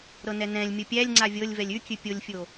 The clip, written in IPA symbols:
ɾ ɤ n ɛ n ɛ̃ lʲ mʲ o pʲ æ lʲ ŋ͡ǀ a vʲ ɤ lʲ v ɛ lʲ ʉ kʲ ʉ pʲ o lʲ fʲ o

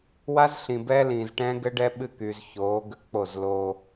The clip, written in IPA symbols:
w a˦ z ɬ ĩ˨ b ɛː˦ l ĩː˨ z ʈ ɛ̃ː˦ ɡ ɘ˦ ɖ ɛ˦ ɓ ɨ˦˨ k y˨ z ç oː˨˦ ɡ ə˦ k͡p o˦˨ z l o˦

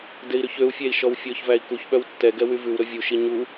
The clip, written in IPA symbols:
d e i̯ ɾ ʉ ç ø u̯ fʲ æ i̯ ʃ ɔ w fʲ ɔ ç v æ i̯ k u ç ɓ œ w tː ɛ ɡ ɛ w y v ʉ w ɾ ɵ vʲ u ʃ i ɲ u

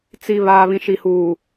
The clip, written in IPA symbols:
t͡s i˨ β aː˨ β ĩ˨ ʃ i˨ h uː˨

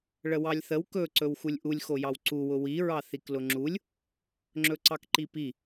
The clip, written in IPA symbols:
ɭ ə w ɑ lʲ θ ə w k ɵ ǀ ɵ w x u lʲ ʔ u lʲ x o j ɑ w ǀ u w ʊ w i ɹ ɑ θ i k l ʊ ŋ͡ǁ u lʲ | ŋ͡ǁ ɵ ǀ ɑ k ǃ i p i

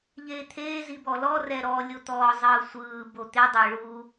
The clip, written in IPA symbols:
ʎ eː t̪ʰ eː z i b ɔ l ɔ r ɛ ɾ ɔ lʲ o t̪ ɔː zˤ ɯː sʷ ɯː b o t̪ e dˤ ɤ ɭ u

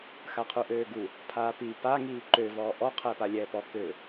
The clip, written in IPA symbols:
x a qʰ u ʔ øː ɡ u | pʰ aː p i p a ŋ iː ǃ ø v ɔː ʔ ɔ qʰ ɛː p a lʲ ɛː p ɔ k ø

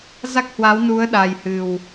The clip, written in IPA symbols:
z a˦˥ k̚ h w a˨˦ w n u˨˦ ə̯ ɗ a˨˩ j h ɨ˨˩ w

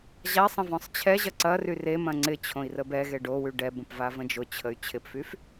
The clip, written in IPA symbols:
ʑ a sˤ ə̃ v ɔ̃ sˤ t͡ɕʰ ɛ ʑ ɐ ǀ ɐ r y r e m ɐ̃ ŋ͡ǀ ɪ t͡ɕʰ õ i̯ r ə b ɛ ɣ e ɖ o w y ɖ ɛ b ə̃ p v a v ə̃ d͡ʒ ʊ t͡ɕʰ ə y̯ t͡ɕʰ ɪ p f y f

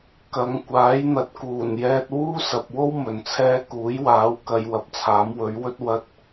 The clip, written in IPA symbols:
k ɐ˨˧ ŋ kʷ aː˨˥ j n̪ ɐ˨˥ t̚ k uː˨˩ n j ɛː˧ t̚ w uː˥ s ɐ˨ p̚ w o˥ w m ɵ˨ n t͡sʰ ɛː˥ k uː˨˥ j w aː˨˥ w k ɐ˨˧ j w ɐ˨ p̚ t͡sʰ aː˨˥ m w ɵ˨˥ ɥ w ɵ˥ t̚ w ɐ˧ t̚

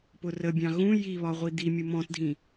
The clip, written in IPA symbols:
p ʊ r ə bʲ ɑ̃ ɣ ũ j i β ɒ ʁʷ i d̪ i mʲ u m ɔ̃ t dʱ ĩ

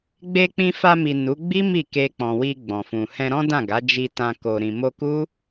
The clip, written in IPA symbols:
ɡ͡b e˧ k͡p ĩ˧ f a˧ m i˨ n u˨˦ ɡ͡b i˦ m i˦˨ k e˧ k͡p ɔ̃˨ w i˧ ɡ͡b ɔ̃˨ f ũ˨ h ɛ̃˧ ɾ ɔ̃˦ d ã˦˨ ɡ a˨˦ d͡ʒ i˧ t ã˧ k o˧ ɾ ĩ˨ m o˧ k u˦

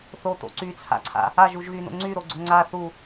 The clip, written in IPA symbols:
θ o t̪ o̰ ǀ y t͡sʰ a̰ ǀʰ a̰ | a ʒ u ʒ ɣ y n o̰ ŋ͡ǀ y ɾ o ɡ͡ǀ o ŋ͡ǀ a θ u

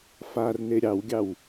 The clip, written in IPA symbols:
f a r n e ɾʲ ɑ w ɡʲ ɑ w

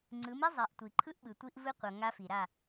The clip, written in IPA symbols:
ŋ͡ǀ ɯ˨˦ m e˦ zˤ a˨ ʔ tʷ i˨ ǃʰ ɯ˦ ʔ ɓ ɯ˨ tʷ i˦ ʔ v ɯ˦ qʷ ʌ˨ ŋ a˦ f i˨ ɾ a˦˨

